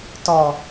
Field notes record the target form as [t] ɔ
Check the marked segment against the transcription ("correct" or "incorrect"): correct